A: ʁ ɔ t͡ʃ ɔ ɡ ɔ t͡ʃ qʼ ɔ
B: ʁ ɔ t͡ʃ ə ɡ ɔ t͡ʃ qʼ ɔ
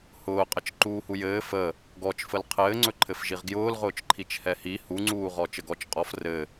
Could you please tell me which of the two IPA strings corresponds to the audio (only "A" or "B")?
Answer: B